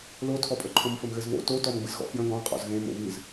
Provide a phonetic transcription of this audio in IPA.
l o tʰ ɔ pʼ ə ǃʰ õ m f ɘ m ɣ ɘ z β o̰ t o t ɔ m ɡ͡b ɨ z ɣ ɔ̰ f j ə̃ ɡ ɔ̃ qʼ ɔ̰ z ɣ ẽ m o̰ β ɨ z

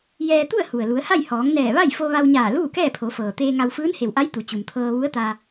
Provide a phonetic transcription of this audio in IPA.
j ɛː˧ t̪ u˥˨ ə̯ h u˩ ə̯ l u˩˧ ə̯ h a˥˨ j h ɔː˩˧ ŋ n ɛː˧˩ ʋ a˥˨ j f o˧ ʋ a˧ w ɲ aː˧˩ l uː˥˨ k ɛː˥˨ pʰ o˩˧ f ɤː˩ t̪ eː˧ ŋ a˧ w f ɯː˧˥ n h e˩ w ʔ a˧˥ j t̪ u˩˧ t͡ɕ u˩ m t̪ʰ ɤː˧ ʋ u˧˥ ə̯ t̪ a˧

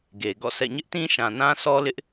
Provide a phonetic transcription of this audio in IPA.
ɡ e˨ ɡ ɔ̰˦˨ sʰ ɛ̰˦˨ ɲ ɪ˦ ʔ t ĩ˦ ʃ ã˨ n ã˦ sʰ ɔ˦ l ɪ˦ ʔ

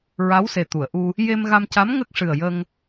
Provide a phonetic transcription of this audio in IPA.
ɹ a˧˥ w s e˨˩ t̪ u˨˩˨ ə̯ ʔ u˧ | j e˧ m ɣ a˧ m c a˧˥ m ŋ ə˦˥ k̚ ʂ ɨ˨˩ ə̯ j ə˧ ŋ

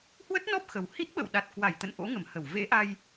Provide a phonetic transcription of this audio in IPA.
h w ə˦˥ t̚ n ɔ˦˥ p̚ x ə˨˩ w h i˦˥ t̚ ɓ ə̰˧˨ w ɗ a˨˩ t̚ k w a˧˩ j t̪ ə̰˧˨ n ʔ o̰˧˥ ŋ ə˧˩ m h ə˧˩ w v ḛ˧˥ ʔ a˧ j

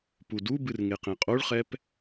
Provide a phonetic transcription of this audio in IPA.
p u d u b ɨ r ŋ e q ẽ qʼ o ɭ χ ɛ p

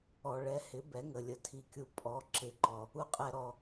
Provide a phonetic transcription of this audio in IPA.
ɔ˨ ɭ ɛ˨˦ h ɪ˨˦ b ɛ˨˦ ŋ ə˨ lʲ ə˨ tʰ i˨ kʲ u˨ pʼ ɔ˨˦ ǁ ɪ˨˦ ǃ ɔ˨ | u˨ qʼ ɛ˨ ɾ ɔ˨

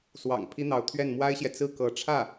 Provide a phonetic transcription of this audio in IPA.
s w ɑ̰˨˩ ŋ pʰ i˥ n̪ ɑ˧˥ ʊ̯ t̪ʰ ɥ ɛ˥˩ n m w a˥ ɪ̯ ɕ j ɛ˨ t͡s ɹ̩˥˩ k ɤ˧˥ ʈ͡ʂʰ ä˥˩

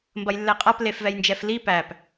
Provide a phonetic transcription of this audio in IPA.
m b ɐ j lː ɛ qʼ a p l e f v ɛ j n d͡ʒ ɛ f l i p æ p

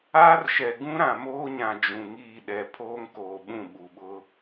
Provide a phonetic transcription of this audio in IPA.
aː˦ r ʃ ɛ˨ ɡ ũ˦ ɾ ã˨ m oː˦ ɲ ã˨ d͡ʒ ũ˨ ŋ iː˦˨ ɗ ɛ˨ pʰ oː˦ ŋ k oː˨ ɓ ũ˦˨ ɓ u˨ ɓ ʊ˦

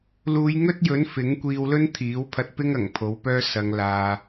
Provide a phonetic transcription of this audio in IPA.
l uː˨˧ j ŋ ɵ˥ t̚ j ɵ˨˥ n f ɪ˨˥ ŋ kʷ iː˧ w l ɵ˥ n t̪ʰ iː˨˥ w pʰ ɐ˧ t̚ p ɪ˥ ŋ ɐ˨˩ ŋ pʰ o˨˥ w p œː˥ s ɐ˨˧ ŋ l aː˨

